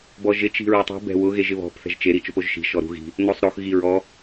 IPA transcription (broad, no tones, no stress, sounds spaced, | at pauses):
b ɔ ʒ ɪ t͡ʃ i̤ ɹ ɛ tˤ i̤ b ɛ̤ w ʊ ɣ e ʒ ɪ β ɔ̤ p θ ɛ̤ ʒ t͡ʃ e ɾ i t͡ʃ ʊ p o ʒ ʃ i̤ ʃ ɔ ɾ ṳ ɣ i̤ | n o sˤ ɾ o x ɣ i ɹ ɔ